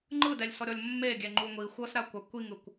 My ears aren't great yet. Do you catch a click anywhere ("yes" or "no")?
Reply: yes